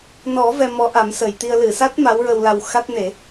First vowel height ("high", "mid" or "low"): mid